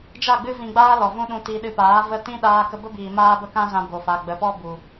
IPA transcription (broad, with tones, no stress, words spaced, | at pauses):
d͡ʒa˦˨ɡ͡bɨ˦ vĩ˧ɡ͡baː˦lɔ˨ vũ˧ ɗũ˧ti˧ ɗɨ˧paː˨˦ və˧ tĩ˦ ɗaː˦kə˦ bə˦biː˨ maː˦bə˦kã˦zã˧ bo˨fa˨ ɡ͡bə˨pɔ˦ bu˨